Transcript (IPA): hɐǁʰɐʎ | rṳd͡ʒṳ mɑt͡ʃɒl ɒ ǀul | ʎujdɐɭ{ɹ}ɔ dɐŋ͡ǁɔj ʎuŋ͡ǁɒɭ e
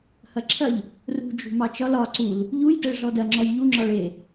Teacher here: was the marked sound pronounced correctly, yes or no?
no